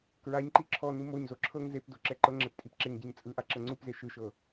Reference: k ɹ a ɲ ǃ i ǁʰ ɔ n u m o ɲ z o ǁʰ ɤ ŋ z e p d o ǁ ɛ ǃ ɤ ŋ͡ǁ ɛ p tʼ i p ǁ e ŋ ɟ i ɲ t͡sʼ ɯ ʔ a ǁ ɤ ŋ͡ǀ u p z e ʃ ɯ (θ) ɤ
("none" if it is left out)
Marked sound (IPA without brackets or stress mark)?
ʃ